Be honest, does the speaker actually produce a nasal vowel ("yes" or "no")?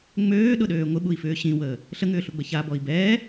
yes